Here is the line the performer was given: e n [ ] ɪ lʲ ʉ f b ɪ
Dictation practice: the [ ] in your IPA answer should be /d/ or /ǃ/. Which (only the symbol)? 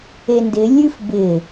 d